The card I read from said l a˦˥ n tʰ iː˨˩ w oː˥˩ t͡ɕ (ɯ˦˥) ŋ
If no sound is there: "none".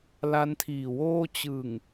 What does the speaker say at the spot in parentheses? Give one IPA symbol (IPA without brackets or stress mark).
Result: ɯ˨˩